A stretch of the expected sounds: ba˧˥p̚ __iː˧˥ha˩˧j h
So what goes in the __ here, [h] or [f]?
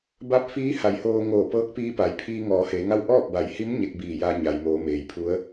f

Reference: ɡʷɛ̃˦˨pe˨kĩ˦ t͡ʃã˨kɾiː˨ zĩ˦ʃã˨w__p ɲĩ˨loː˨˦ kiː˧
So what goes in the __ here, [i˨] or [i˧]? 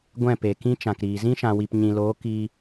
i˨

